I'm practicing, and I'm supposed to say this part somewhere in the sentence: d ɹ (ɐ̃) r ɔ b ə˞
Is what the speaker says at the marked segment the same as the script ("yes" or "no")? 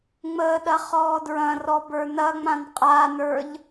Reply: yes